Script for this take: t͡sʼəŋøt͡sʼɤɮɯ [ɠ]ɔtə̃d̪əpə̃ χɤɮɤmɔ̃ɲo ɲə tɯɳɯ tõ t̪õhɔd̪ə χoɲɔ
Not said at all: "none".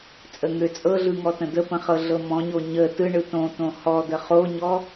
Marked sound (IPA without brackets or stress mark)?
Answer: ŋ